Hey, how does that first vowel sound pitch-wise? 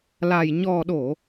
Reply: low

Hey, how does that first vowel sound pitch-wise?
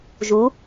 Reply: rising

